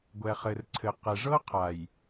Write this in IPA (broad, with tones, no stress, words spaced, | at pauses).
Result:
ɡʷɛ˨χɘ˨rǀʰɘ˨ qɘ˨ʐɤ˦ qʰa˨j